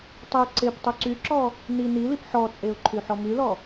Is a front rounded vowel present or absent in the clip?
present